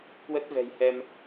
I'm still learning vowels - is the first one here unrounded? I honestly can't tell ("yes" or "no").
yes